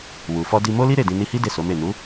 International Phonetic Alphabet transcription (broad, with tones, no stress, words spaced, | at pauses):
wu˨fɔ˧di˧ mo˦li˦ ɾe˦˨dĩ˧ ni˧hi˦ de˦˨so˨˦me˦˨ nu˨˦